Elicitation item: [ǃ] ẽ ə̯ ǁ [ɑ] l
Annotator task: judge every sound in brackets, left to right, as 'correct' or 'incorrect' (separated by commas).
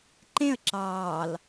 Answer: correct, incorrect